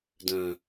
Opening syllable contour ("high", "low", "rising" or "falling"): low